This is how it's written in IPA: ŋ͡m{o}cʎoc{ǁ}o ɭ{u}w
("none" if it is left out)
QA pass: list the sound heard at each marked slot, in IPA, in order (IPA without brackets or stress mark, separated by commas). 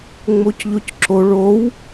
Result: o, ǁ, o